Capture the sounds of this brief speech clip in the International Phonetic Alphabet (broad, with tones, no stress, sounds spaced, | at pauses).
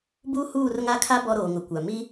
b uː˦ h uː˦˨ r ŋ a˦ kʰ a˦ b ɔ˦ ɾ oː˨ ŋ ʊ˨ kʷ a˨ m i˦